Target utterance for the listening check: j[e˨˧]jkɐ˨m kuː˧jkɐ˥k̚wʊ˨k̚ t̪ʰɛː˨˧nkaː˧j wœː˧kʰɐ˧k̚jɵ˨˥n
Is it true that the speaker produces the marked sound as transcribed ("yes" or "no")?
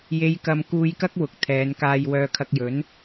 yes